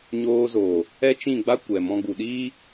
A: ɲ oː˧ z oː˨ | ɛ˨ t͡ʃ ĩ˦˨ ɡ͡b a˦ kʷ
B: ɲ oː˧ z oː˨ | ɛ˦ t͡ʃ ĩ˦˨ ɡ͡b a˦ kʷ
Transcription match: B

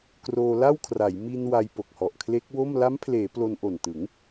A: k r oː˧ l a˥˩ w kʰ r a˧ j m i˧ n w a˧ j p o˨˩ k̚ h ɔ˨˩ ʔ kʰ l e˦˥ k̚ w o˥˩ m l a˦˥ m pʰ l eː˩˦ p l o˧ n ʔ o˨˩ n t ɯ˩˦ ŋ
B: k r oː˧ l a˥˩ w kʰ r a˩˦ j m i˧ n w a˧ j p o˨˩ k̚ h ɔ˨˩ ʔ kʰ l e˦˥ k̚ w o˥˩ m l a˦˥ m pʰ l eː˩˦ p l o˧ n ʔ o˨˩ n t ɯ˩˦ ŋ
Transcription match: B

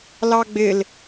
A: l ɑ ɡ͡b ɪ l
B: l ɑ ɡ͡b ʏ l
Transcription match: A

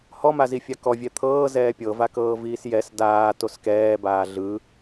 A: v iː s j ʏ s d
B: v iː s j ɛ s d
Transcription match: B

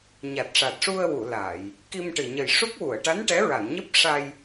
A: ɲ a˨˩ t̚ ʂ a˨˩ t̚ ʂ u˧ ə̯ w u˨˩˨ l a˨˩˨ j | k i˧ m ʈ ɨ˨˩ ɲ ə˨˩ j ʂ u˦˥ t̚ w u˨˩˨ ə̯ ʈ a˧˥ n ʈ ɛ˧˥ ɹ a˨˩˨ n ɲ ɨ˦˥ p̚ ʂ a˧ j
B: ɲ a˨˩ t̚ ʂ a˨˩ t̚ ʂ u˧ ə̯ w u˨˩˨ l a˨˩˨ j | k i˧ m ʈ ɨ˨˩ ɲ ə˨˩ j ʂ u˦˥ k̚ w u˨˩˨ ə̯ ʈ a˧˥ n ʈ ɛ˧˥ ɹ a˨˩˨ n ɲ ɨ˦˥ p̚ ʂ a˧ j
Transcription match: B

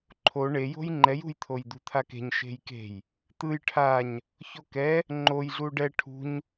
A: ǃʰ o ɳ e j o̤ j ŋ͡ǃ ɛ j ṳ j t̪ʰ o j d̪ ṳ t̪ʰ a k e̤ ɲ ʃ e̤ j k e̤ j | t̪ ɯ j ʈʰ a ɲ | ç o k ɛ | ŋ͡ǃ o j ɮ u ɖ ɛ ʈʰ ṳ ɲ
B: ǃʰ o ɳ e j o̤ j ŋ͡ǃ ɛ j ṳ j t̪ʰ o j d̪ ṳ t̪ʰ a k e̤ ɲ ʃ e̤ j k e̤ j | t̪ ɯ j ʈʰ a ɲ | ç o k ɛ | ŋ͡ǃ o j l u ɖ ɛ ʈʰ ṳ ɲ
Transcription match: A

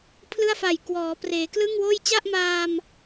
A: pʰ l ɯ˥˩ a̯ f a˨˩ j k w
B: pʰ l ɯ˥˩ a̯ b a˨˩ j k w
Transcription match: A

